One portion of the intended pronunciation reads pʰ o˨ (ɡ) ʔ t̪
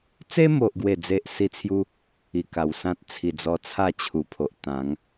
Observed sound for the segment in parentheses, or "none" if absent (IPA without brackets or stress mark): none